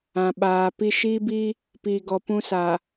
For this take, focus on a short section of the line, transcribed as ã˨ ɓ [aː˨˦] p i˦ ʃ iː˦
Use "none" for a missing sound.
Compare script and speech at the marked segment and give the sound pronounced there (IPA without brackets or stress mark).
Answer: aː˨